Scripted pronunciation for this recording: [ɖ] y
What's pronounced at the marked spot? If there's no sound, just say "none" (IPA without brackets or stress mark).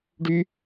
ɖ